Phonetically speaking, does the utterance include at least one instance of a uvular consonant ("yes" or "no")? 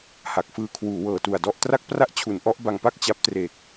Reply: no